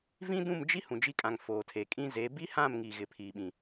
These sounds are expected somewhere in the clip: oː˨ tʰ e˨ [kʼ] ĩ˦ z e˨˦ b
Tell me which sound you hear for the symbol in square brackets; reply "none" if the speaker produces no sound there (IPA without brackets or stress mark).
kʼ